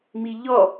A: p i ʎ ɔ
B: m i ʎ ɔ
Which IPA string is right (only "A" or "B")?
B